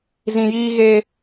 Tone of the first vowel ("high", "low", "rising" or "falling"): low